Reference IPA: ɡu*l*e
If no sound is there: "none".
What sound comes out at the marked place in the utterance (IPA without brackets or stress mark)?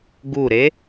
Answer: ɾ